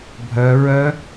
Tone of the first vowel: rising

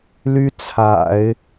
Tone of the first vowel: high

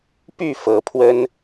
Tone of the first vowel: falling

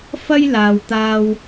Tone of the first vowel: high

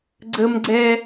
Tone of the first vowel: high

